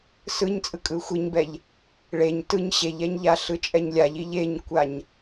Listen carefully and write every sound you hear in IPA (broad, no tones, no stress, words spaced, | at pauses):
sɯɲt͡sʼɯkʼɯ xʷiɲbɛʎ | ɭeɲ tɯɲ ɕeʎɛɲʎa ɬɯt͡ʃʼɛɲlʲaʎ iʎeɲkʷaɲ